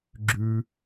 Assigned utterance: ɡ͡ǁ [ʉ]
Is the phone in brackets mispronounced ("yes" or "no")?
no